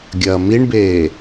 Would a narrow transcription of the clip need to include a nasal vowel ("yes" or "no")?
no